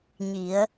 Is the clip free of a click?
yes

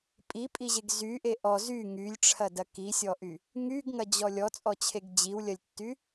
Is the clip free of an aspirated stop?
no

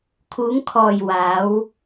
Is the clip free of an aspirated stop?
no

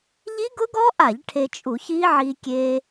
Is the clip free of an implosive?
yes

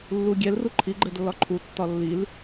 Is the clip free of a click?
no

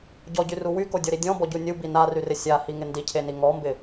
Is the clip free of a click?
yes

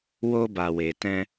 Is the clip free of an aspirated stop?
yes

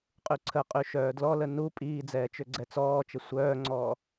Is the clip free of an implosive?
yes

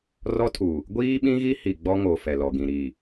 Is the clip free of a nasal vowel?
no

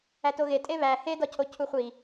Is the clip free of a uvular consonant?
no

